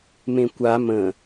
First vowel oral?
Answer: no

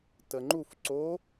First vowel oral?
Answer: yes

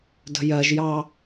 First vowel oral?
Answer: yes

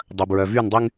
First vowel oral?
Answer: yes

